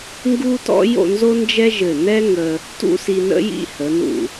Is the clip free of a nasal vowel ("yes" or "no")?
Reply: yes